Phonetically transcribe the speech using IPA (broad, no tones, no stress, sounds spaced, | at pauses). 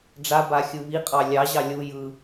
ɖ͡ʐ a b a xʲ ɯ β i qʼ ɑ lʲ ɑ ʑ ɑ lʲ u j ɯ